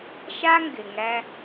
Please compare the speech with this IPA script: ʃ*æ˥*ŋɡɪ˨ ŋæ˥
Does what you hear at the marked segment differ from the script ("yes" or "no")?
yes